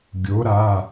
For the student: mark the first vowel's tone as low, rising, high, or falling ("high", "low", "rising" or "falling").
rising